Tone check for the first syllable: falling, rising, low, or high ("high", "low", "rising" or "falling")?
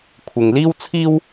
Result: low